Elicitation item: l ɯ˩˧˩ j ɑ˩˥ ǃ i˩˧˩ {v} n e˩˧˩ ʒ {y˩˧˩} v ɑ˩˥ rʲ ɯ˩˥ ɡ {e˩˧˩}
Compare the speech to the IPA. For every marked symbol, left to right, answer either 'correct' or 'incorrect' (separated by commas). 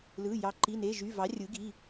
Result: incorrect, correct, incorrect